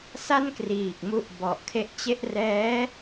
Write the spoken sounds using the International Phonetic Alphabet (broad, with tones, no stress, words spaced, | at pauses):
sa˥˩nkriː˨˩k̚mu˦˥ʔ bɔ˨˩ʔkʰe˦˥ʔt͡ɕe˥˩ʔ rɛː˦˥